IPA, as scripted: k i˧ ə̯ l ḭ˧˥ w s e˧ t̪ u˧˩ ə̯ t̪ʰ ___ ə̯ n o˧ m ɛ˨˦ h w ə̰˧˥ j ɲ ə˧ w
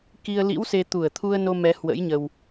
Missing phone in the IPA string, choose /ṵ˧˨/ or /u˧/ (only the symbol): u˧